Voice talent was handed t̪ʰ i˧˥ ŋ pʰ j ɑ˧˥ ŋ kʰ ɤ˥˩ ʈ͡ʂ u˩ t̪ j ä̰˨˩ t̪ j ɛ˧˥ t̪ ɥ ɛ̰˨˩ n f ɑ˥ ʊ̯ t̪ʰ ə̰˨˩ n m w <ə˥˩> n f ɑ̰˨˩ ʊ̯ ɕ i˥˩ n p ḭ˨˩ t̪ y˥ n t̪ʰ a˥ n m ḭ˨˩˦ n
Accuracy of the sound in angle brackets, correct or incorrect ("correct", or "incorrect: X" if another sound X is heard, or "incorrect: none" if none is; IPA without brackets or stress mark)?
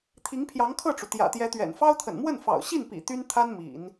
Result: correct